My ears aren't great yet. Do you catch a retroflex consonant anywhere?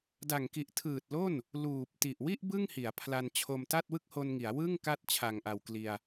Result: no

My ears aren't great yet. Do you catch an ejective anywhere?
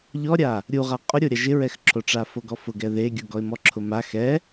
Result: yes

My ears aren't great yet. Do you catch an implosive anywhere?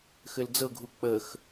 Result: no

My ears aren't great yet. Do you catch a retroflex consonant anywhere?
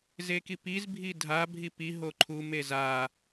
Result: no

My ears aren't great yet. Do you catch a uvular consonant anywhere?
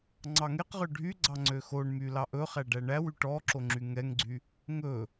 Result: yes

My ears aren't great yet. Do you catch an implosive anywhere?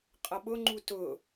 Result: yes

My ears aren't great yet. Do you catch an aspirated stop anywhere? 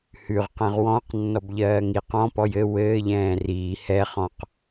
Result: no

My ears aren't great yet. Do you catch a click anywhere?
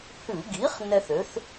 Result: no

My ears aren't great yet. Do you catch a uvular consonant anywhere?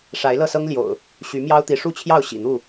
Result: no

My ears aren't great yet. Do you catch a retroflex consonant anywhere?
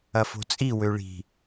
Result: yes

